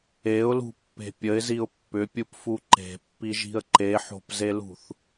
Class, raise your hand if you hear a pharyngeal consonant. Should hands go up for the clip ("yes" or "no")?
yes